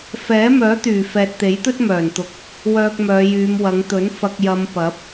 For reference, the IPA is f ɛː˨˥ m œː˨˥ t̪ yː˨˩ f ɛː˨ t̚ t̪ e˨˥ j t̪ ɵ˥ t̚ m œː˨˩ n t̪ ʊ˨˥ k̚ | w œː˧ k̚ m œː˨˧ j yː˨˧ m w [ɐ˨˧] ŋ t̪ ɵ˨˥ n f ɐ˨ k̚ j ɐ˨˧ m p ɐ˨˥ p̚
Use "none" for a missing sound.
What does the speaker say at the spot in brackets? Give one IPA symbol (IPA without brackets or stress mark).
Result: ɐ˨˧